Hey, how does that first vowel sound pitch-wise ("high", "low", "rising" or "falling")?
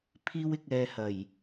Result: high